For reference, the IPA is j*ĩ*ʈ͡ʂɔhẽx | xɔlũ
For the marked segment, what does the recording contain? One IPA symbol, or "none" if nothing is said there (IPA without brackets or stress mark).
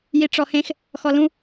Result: i